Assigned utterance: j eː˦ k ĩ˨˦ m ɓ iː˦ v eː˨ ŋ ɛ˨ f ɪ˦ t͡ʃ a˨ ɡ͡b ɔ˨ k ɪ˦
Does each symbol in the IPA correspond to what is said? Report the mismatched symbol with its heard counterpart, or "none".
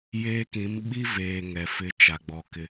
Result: iː˦ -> i˦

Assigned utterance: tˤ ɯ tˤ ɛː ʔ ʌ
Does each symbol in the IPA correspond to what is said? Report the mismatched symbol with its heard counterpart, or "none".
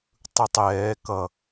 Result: ʔ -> k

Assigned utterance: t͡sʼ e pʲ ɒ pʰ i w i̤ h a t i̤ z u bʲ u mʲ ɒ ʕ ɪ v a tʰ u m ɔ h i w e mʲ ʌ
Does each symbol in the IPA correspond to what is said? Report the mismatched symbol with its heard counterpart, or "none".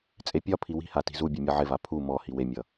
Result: tʰ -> pʰ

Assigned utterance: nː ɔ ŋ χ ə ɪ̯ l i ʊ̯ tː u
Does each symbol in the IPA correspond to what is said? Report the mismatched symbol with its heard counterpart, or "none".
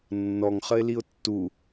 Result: none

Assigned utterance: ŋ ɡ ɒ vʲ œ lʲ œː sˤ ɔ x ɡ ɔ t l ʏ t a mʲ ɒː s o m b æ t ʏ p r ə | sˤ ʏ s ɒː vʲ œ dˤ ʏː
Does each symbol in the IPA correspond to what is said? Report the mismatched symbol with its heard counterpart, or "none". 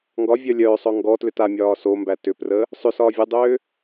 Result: x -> ŋ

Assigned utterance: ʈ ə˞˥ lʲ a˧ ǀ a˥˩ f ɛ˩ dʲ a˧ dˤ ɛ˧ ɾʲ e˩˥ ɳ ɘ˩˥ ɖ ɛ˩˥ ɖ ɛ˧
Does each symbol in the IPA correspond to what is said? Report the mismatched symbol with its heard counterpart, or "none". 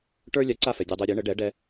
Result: e˩˥ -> ɛ˩˥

